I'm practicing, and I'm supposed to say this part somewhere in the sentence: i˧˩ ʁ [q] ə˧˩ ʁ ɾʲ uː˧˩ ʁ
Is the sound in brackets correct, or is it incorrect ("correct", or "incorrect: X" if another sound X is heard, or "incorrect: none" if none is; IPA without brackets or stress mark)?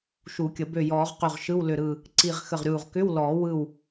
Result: incorrect: x